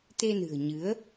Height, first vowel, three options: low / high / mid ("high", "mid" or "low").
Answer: mid